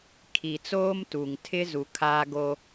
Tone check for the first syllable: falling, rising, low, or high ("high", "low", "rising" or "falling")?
low